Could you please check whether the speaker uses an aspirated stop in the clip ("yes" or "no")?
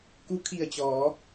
yes